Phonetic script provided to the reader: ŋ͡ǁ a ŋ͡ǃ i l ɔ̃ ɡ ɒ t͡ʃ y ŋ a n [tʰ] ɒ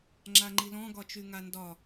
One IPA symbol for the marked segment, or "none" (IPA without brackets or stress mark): d